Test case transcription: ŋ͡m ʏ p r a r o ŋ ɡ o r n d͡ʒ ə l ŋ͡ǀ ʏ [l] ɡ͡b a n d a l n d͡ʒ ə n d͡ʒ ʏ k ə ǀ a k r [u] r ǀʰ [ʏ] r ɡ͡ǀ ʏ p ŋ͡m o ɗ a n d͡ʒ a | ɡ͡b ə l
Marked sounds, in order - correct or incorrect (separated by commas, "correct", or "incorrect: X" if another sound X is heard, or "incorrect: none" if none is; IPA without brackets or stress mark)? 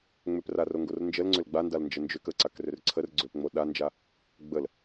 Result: correct, incorrect: ʏ, incorrect: ə